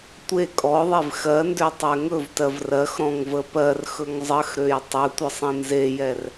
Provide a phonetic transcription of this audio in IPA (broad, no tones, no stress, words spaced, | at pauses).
tʷe kʼɔðˤev xɜ ndøtˤɛŋɵvtɜv rɜxɾɔ̃ŋ vəpɜrxɵŋ zˤəxɾøj tˤɵ tʷəsˤẽnzejɛr